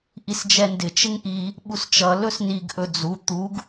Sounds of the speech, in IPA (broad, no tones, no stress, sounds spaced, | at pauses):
ʔ i s d͡ʒ ɛ n d ɪ t͡ʃ ɪ ŋ ʔ i | ɓ u s t͡ʃ ʌ l ɵ s n i ɡ ʔ ɵ d͡z u t̪ u ɡ